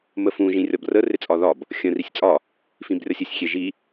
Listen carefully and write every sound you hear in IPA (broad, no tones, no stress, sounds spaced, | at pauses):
m ə f ũ ʒ ĩ rʲ ɒ b r ə r ɪ t͡sʼ ɒ ð ɒ b | xʲ ə̃ r i sʲ t͡sʼ ɒ | f ĩ b rʲ ɒ sʲ ɪ sʲ xʲ e ʒ i